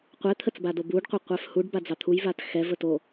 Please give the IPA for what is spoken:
qʷ ɛ t̪ʰ ə t͡s b a d o b u ɖ qʷ ə qʷ ɛ f h u ɖ b a d͡z ɑ t̪ʰ u j v a t x ɛ v ə t o

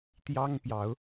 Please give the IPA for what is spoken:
t̪ j ɑ˦ ŋ p j ɑ˨˦ ʊ̯

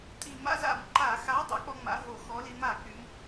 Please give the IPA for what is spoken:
tʼ i˧˩˧ m a̰˥ z a̰˧˩˧ m ǃ a˧˩˧ x a˨˥ dˤ a̰˨˥ k͡p ɔ˥ ŋ͡m a̰˨˥ ɦ o˧˩˧ x ɔ˨˥ l i˨˥ m a˧˩˧ k͡p y˨˥ m

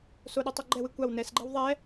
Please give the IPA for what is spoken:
s o ɗ o tˤ o ɡ͡ǃ ɛ w ɨ kʷ a w n ɛ s ɡ͡ǃ ɛ w ðˤ ɛ

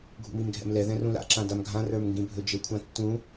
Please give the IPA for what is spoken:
ɡʱ ṵ m i m ɡʱ ɛ̰ m l ɛ ð ɛ̃ r ũ l a̰ ǁ ã d a m ɡʱ ã r ə˞ m ŋ ɡ ĩ bʱ ɵ d͡ʒ ɘ kʷʰ ã tː ũ

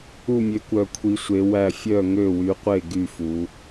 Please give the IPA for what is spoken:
u˦˨ mʲ ø˨˦ kʷ œ˨˩ kʷʰ i˨˦ sʷ e˨˦ w æ˦˨ fʲ œ˦˨ ŋ ø˦˨ w y˨˦ qʷ e˦˨ ɡ y˦˨ f u˨˦

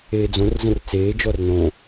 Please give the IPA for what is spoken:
eː d͡z õ r z ə̃ r t͡s eː d͡ʒ ɔ r n õ

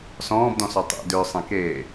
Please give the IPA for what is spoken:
s ɔ̃ː b d ɔ̃ s ɔ tˤ ḛ d ʏː sˤ ẽ k eː

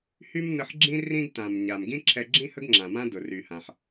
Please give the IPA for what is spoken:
h y˥ m n ə˧ ħ ɡ͡ǁ ĩ˥ r ĩ˥ ɡ t ã˩ m ɲ a˩ m ɡ ĩ˥ ǁʰ ɛ˧ ɡ͡ǁ ĩ˥ h ə˥ ɡ ŋ͡ǁ ã˩ m ã˥ d ʊ˩ r y˩ h ã˩ ħ

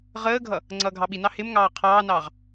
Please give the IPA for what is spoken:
ʁ əː ɡʱ ʌ | ŋ͡ǀ ʌː ɡʱ ɑ ɓ i n ɑ h ɪ m ŋ ɑː qʰ ɑː n ɑː ʁ

